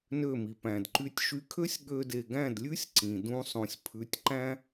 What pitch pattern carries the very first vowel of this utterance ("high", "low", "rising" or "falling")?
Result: falling